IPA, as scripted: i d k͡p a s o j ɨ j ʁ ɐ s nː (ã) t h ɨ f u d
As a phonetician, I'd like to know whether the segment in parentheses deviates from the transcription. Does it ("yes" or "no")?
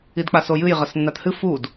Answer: yes